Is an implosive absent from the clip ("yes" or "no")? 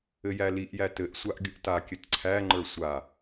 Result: yes